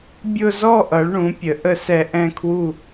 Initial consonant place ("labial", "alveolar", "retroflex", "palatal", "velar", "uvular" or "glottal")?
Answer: labial